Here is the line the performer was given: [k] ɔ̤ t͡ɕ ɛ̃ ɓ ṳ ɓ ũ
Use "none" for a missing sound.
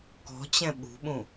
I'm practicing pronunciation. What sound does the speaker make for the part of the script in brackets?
k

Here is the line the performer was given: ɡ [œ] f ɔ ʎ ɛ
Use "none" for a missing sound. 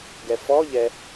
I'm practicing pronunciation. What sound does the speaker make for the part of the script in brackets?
ɛ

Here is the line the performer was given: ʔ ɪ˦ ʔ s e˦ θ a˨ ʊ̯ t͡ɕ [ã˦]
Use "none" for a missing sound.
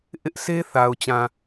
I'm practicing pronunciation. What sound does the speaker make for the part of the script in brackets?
ã˨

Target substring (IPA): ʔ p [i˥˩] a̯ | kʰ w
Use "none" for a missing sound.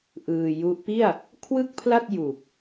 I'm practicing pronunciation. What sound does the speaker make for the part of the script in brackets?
i˥˩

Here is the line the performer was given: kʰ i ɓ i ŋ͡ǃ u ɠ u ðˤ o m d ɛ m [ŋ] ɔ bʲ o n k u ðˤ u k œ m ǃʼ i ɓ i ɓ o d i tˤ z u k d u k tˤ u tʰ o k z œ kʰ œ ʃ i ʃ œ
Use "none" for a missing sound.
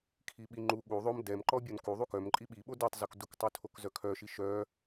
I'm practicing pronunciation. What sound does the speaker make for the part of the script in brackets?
ǃ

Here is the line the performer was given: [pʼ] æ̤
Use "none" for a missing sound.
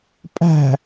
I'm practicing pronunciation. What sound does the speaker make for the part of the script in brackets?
pʼ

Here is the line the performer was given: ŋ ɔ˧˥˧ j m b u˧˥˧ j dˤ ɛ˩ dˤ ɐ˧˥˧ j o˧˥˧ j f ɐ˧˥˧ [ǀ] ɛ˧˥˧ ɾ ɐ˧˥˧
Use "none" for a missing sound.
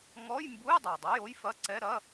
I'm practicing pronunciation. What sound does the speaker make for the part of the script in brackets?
ǀ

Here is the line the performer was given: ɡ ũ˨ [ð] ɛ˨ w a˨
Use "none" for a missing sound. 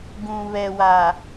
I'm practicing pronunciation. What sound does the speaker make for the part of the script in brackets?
β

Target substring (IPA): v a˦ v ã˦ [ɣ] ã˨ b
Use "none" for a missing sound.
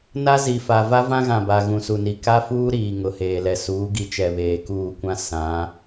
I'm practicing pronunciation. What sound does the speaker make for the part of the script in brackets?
ɣ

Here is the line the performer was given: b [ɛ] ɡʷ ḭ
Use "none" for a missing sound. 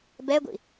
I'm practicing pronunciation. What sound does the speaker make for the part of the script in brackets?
ɛ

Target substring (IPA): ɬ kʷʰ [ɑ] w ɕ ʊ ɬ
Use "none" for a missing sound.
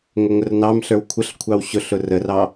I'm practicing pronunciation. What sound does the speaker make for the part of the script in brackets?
ɑ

